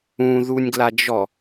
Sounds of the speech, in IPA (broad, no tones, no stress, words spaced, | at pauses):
ũðunʲɡlad͡ʒɔ